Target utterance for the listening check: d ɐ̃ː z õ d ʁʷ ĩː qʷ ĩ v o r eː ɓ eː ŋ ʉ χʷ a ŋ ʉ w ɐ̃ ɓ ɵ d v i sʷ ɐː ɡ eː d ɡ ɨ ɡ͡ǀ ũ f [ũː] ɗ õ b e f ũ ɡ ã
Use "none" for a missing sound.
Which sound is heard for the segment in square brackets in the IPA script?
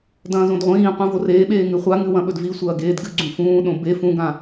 ũː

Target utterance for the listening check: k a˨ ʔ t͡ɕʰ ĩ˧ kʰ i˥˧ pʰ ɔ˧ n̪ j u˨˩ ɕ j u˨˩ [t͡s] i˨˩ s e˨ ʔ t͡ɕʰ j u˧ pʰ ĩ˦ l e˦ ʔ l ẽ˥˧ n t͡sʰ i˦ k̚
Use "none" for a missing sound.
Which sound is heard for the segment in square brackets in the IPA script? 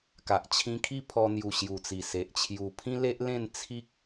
t͡s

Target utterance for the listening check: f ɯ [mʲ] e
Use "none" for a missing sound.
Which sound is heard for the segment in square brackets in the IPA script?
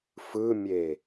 mʲ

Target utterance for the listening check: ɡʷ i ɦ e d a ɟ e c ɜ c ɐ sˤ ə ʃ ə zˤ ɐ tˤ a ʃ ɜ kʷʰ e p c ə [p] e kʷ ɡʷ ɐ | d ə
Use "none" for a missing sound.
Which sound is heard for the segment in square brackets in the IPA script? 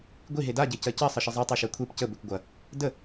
b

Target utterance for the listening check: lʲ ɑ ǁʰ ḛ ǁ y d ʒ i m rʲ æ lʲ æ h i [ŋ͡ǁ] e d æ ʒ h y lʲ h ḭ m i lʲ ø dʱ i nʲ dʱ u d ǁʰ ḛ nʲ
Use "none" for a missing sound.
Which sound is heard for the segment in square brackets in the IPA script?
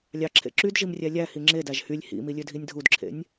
ŋ͡ǁ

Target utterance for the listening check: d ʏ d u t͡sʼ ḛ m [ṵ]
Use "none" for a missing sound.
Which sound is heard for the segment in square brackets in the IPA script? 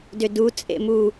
u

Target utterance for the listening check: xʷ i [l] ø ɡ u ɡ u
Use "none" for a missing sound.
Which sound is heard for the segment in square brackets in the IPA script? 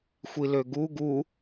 l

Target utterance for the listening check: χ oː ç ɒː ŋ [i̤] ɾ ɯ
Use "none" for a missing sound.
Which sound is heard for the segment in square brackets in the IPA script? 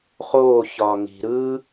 i̤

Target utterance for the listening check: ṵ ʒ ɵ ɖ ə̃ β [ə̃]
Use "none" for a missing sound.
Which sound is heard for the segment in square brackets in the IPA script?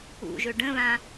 ã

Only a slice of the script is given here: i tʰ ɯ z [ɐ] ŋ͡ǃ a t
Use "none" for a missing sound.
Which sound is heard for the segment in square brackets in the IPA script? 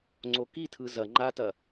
ɐ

